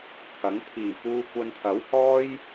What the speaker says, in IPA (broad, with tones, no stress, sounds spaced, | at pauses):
t̪ʰ ɐ˨˥ ŋ t̪ʰ iː˨˩ p uː˧ kʷ ɐ˧ n t̪ʰ ɐ˨˥ w h ɔː˥ j